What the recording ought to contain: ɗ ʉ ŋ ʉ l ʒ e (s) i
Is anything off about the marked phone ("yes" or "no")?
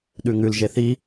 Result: yes